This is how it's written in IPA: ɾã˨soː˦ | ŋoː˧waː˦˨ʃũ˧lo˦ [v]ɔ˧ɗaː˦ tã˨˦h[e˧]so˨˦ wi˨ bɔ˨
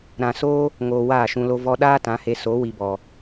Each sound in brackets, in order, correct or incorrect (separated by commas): correct, correct